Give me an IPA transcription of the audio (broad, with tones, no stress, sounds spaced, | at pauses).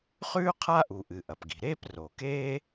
χ ʉː˥ qʰ a˥ ʔ u˩ ʔ ɨ˩ ʔ ɐ˩ p ɡ i̤˩ ɾ eː˥ p r o˩ k eː˥